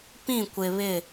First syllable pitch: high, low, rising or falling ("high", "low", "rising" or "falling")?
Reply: falling